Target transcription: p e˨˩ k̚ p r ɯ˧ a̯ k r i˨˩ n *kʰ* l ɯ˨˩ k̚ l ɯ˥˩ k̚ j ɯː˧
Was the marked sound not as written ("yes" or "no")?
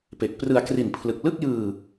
yes